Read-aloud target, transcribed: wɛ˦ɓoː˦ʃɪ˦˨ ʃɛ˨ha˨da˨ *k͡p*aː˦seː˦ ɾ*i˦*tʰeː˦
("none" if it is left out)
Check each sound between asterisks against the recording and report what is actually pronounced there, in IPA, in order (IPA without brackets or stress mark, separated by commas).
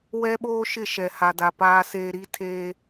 p, i˦